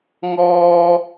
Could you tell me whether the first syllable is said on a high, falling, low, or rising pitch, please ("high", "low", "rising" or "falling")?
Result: low